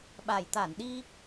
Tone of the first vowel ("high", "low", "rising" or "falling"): low